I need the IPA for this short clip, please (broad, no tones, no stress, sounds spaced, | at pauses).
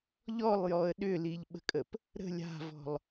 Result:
ʎ ɔ lˠ j ɔ ə̯ ɗ ʏ l i ʎ ɓ ə̤ kʼ ə p | ɾ ə̤ lʲ a̤ v ɔ̤ lˠ